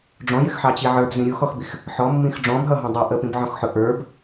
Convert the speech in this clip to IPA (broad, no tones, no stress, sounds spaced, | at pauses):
ɖ͡ʐ ɔ̃ j ɪ x ħ ɑ t͡ɕ i ʕ ə˞ b z ĩ ɾʲ u x ɔ x b i x | ħ ɔ mː ĩ x ɖ͡ʐ ɔ̃ b ɦ ʌ ɦ ɔ̃ dˤ ɑ ʔ ə p ĩ b ʕ ɔ̃ x ħ ʊ ʔ ə˞ b